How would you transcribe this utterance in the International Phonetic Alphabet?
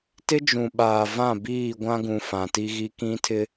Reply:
t ɪ˦ d͡ʒ ũ˨ ɓ aː˨ v ã˦˨ b iː˦˨ ɡʷ ã˦ ɡ ũ˨ f ã˨ t i˦ ɣ i˦ k ĩ˦ tʰ ɪ˦

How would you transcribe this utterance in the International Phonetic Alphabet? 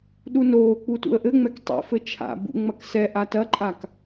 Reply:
ɗ u n oː k͡p u t ṵ ə̯ ʔ ɘ ŋ͡m ɛ k tˤ ḭ f ɘ t͡ʃʰ a̰ b ṵ ŋ͡m ɐ k s ɛ ʔ a t ɐ ǃʼ a k

